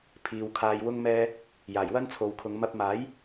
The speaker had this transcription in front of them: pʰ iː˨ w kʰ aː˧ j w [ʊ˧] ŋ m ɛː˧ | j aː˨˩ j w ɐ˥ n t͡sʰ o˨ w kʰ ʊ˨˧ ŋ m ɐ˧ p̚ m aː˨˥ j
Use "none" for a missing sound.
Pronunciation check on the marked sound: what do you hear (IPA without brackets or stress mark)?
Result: ʊ˧